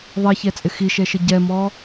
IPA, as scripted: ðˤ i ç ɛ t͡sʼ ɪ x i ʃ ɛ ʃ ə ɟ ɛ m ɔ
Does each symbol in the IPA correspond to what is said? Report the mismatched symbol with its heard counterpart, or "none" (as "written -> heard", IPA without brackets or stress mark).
none